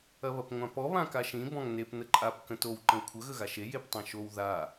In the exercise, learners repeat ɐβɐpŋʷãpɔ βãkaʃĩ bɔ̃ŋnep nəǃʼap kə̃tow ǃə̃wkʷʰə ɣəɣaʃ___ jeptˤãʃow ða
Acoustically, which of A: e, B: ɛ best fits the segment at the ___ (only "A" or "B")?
A